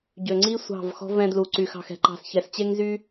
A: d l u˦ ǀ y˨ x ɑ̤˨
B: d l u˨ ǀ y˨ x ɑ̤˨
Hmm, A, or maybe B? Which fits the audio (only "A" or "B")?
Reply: B